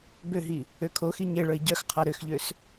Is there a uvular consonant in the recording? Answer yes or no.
yes